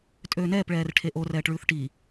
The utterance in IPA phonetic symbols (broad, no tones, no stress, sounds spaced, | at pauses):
tʼ øː n ɛː p ɭ ɛː r ʈʰ e ʔ o r ɛː ʈ ɭ ʉː θ ʈ i